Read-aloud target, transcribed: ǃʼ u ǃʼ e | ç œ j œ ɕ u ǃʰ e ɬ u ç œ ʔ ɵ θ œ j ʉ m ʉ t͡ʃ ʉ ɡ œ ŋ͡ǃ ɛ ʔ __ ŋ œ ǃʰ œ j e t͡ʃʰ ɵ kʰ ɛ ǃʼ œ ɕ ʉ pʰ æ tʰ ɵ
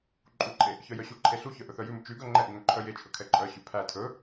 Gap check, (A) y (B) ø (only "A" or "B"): A